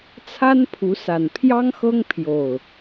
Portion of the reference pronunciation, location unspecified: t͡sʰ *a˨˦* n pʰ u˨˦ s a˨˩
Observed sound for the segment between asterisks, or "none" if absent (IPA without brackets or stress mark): a˦